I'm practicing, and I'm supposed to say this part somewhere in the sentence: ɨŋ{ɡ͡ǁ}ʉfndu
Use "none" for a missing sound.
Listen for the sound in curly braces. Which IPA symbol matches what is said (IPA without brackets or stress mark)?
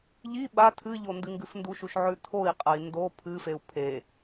ɡ